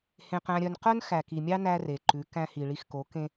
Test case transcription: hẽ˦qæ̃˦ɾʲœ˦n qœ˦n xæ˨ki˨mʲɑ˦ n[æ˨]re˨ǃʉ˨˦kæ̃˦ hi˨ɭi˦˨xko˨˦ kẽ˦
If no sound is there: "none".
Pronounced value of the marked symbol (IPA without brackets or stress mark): æ˦